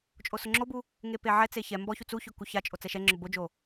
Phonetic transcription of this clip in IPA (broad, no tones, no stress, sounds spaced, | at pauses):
t͡ʃʼ o s ʊ ŋ͡ǁ o b u | ŋ e p e ʕ ɛ t͡s e ç ɛ m b ɔ ç u t͡s u ç ʊ k u ç a t͡ʃʼ o t͡s ɛ ʃ ɛ ŋ͡ǁ ʊ b o d͡ʒ o